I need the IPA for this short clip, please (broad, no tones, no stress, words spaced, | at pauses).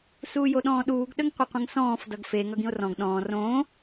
suːjoɗɔ̃ːɗuːɡ ɗəŋqʷʌqʷə̃ŋsɔ̃ːf dʌɡfe ŋʌɡĩo̯rɔ̃ɡ ɗɔ̃ː rõː